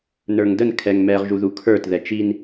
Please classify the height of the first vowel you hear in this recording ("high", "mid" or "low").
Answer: mid